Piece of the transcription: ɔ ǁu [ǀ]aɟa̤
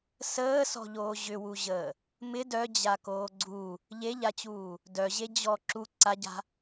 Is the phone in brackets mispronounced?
no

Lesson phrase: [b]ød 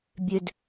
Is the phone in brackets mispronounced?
yes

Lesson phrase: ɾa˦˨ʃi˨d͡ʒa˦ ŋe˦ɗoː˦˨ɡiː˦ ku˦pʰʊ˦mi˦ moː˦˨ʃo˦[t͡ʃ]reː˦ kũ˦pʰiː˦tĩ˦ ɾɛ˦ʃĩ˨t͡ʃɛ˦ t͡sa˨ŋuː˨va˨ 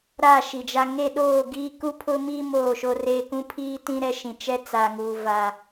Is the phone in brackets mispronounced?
yes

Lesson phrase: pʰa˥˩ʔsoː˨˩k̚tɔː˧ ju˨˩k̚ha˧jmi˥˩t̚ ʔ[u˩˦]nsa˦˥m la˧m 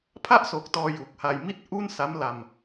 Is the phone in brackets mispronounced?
yes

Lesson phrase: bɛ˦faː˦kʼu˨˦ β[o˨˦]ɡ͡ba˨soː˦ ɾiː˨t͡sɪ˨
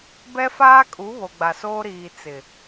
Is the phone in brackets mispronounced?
yes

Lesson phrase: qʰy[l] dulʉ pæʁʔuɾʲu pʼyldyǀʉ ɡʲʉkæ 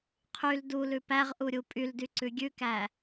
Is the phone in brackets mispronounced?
no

